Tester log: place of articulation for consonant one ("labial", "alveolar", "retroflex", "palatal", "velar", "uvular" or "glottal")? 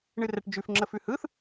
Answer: retroflex